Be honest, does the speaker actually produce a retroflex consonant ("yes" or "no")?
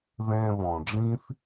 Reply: yes